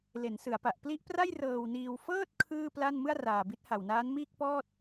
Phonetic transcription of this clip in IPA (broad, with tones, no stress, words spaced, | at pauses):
le˩˦n sɯ˩˦a̯pa˨˩ʔ pli˦˥ʔpra˥˩j rɤː˧w niː˧w fɤː˥˩t̚ kʰɯː˥˩pla˥˩n mɯ˥˩a̯raː˨˩bi˦˥t̚ ha˨˩wnaː˦˥n miː˥˩k̚pɔː˥˩t̚